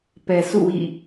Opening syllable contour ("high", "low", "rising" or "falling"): low